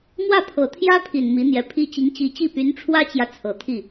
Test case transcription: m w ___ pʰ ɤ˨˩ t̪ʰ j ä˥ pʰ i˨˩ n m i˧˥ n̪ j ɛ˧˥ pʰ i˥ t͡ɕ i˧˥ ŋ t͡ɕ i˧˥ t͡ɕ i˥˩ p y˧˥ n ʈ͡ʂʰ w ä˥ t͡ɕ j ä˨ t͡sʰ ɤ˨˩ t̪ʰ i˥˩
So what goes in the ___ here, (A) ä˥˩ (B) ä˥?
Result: A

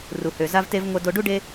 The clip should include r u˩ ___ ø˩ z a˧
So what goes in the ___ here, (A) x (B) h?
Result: B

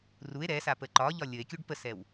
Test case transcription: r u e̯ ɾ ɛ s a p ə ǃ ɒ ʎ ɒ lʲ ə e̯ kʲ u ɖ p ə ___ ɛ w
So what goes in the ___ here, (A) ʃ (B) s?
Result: B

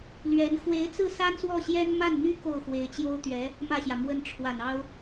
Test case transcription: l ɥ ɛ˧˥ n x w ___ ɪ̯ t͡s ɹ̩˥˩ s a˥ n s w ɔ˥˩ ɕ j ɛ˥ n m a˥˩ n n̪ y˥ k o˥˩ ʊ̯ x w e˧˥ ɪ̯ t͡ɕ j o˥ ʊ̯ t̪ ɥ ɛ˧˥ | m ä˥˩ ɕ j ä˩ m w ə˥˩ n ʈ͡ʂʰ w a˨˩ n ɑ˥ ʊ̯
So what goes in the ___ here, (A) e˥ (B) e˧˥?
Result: B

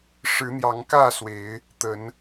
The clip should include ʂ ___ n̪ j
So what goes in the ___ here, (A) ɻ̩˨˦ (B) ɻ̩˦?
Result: A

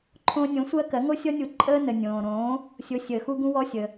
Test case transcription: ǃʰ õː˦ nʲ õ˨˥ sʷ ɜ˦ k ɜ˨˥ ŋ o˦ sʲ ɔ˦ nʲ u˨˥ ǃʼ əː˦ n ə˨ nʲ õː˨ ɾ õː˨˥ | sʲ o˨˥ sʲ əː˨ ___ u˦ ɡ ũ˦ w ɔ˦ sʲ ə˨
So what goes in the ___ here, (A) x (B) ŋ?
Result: A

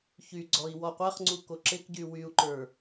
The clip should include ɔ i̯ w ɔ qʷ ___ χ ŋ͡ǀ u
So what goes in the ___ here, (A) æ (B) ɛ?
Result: A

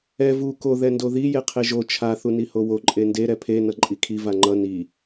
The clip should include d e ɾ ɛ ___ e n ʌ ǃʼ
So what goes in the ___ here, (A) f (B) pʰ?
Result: B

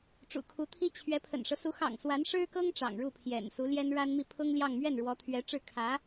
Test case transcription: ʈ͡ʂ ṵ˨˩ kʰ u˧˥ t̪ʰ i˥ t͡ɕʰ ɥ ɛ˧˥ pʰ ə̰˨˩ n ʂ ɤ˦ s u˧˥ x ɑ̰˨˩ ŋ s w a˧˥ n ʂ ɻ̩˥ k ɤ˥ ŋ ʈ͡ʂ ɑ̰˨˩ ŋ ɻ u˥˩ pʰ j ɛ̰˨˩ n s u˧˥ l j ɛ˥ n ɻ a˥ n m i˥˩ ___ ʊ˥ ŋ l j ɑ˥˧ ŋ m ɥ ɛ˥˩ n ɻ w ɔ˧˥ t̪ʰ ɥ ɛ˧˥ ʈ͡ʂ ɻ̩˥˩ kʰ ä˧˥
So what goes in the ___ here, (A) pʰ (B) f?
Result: A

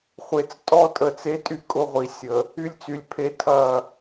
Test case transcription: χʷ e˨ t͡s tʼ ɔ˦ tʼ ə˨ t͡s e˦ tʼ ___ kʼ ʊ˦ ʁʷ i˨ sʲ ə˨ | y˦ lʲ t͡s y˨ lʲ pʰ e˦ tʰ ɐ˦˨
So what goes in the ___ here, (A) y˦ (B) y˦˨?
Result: A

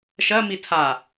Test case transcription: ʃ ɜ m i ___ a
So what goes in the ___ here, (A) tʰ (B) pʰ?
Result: A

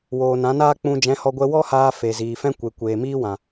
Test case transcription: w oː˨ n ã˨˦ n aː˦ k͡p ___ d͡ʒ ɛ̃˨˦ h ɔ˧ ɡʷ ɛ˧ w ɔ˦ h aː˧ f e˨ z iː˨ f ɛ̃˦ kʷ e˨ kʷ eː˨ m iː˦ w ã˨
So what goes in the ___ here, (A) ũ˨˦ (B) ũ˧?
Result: B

